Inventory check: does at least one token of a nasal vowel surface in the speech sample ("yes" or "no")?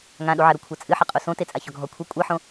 yes